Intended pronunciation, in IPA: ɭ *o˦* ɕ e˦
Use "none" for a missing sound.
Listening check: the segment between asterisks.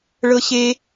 ɤ˦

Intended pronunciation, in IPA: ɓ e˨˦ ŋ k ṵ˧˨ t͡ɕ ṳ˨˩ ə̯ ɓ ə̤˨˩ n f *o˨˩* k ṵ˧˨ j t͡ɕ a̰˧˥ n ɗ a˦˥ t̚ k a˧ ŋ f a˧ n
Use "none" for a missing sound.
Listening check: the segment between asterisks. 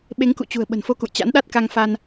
o˧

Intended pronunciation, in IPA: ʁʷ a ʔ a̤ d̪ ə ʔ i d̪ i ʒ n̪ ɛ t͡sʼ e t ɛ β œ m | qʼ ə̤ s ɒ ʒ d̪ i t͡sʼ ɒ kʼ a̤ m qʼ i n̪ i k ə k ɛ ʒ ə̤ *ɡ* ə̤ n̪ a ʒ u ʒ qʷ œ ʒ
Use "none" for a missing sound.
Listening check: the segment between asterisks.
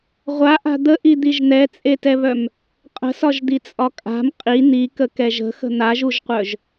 x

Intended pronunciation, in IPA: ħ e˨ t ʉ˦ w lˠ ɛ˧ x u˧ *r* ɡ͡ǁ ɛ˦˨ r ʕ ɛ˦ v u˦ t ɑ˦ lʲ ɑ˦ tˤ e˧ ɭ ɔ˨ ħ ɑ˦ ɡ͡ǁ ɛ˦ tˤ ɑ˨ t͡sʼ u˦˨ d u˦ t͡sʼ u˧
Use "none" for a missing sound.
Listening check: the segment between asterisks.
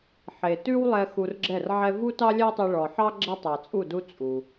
r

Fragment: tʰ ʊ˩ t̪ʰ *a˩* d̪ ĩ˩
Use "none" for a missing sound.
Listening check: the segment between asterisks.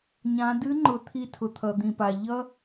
ʌ˩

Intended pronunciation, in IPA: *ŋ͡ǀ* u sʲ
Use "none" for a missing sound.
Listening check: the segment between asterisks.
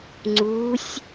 ŋ͡ǀ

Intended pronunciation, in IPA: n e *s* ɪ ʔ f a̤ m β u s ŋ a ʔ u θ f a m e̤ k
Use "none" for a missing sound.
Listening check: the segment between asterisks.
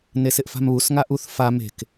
s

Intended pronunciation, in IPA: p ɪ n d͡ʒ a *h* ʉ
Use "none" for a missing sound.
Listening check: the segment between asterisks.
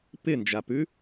p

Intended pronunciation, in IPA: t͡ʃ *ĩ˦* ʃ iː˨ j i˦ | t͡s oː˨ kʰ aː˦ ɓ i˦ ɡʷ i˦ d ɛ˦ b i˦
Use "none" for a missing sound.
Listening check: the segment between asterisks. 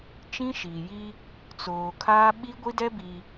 ĩ˦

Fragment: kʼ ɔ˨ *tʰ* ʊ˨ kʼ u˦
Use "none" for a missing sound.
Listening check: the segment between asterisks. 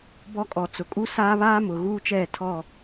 t͡s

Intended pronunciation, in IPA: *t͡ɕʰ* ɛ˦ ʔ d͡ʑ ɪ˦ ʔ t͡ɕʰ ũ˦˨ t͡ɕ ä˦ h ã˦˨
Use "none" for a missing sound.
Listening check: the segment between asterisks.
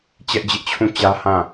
t͡ɕ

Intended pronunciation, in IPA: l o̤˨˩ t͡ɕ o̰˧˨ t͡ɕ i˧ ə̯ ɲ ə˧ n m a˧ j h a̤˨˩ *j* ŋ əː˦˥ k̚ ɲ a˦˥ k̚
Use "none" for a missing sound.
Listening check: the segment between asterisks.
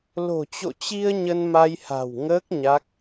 w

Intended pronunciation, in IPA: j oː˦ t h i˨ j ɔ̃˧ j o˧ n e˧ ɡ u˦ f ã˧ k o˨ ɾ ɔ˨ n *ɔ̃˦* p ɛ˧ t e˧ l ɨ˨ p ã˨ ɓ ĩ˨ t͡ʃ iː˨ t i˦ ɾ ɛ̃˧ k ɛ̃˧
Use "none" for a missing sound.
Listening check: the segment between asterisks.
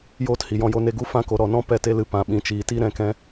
ɔ̃˦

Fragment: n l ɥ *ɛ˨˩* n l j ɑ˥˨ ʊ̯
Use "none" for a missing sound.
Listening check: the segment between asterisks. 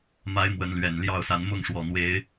ɛ˨˩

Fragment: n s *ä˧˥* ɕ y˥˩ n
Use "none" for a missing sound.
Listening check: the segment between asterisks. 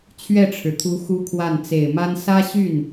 ä˥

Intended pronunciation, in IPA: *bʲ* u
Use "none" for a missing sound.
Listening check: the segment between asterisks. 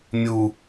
mʲ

